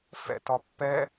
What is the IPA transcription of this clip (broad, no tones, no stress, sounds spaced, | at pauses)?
f ɛ̰ t ɒ pː ɛ